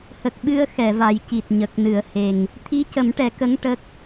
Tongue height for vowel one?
mid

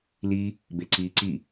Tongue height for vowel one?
high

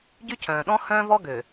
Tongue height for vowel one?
high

